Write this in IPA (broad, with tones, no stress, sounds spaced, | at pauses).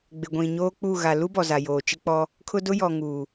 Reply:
ɡ͡b ɪ˨ ɡʷ ĩ˨ ɲ oː˦ k͡p u˦˨ ɣ a˨ l u˦ b ɔ˨ z a˨ j oː˨ t͡ʃ ɪ˦ k͡p ɔ˦ | kʰ ʊ˦ d ʊ˦ j ɔ˨ ŋ uː˨